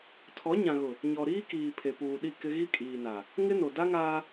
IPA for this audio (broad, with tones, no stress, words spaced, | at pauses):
tʰɔ˨˦ɲã˨ɣʊ˨ | ɲɔ˨ɾiː˦kiː˨ pʰe˨puː˨ɗi˦˨ kɪ˦ ɣi˦kʼiː˨na˨ | ŋɪ˦no˨ da˦ŋaː˦